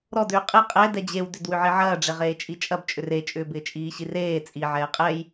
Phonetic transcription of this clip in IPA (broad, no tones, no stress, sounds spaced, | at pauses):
ɾ ɔ d ʏː qʼ e qʼ ɛ d ɛ d͡ʑ e w d ʏ d w ʏ ʕ i ʕ ɐː ɖ͡ʐ e ʁ eː t͡ʃʼ i t͡ʃʼ ɐ b t͡ʃʼ ʏ r e t͡ʃʼ ʏː b ɪː t͡ʃʼ iː ɕ i r eː t͡sʼ i ʕ ɛː qʼ ɛ j